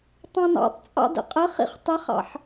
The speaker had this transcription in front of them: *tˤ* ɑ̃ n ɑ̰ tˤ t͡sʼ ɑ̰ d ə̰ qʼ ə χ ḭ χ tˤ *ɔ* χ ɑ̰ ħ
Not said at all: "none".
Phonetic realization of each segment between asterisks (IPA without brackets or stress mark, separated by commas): tˤ, ə